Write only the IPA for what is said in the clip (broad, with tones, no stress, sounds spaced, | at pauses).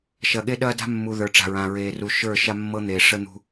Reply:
ʃ ɐ˨ ɠ e˦ ɗ ɐː˦ d a̤˦ mː u˨ ð ə˞˨ ʈ͡ʂ a̤˨ ɹ ã˨ ɹ eː˨ r u˨ ʃ ə˞˦˨ ʃ a˦ mː ɤ˦ n̪ eː˨ ʂ ə˦ n̪ ṳ˦